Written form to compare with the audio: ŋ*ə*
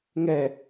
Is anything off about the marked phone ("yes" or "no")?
yes